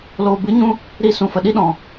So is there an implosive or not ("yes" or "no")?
yes